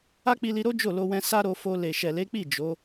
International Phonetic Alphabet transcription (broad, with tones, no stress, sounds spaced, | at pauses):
a˦ k͡p i˧ l i˧ ɾ o˦ d͡ʒ o˦˨ l o˧ w ɛ̃˧ s a˦ ɾ o˧ f o˧ l e˨ ʃ ɛ˨ l e˨˦ k͡p i˦˨ d͡ʒ o˨˦